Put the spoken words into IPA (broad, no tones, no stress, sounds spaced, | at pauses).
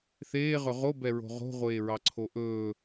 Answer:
θ eː ʁ ɵ ʁ o b ɛ ɹ o̤ ʁ o̤ ʁʷ eː ɹ ɑ ǀʰ o ʔ ɵː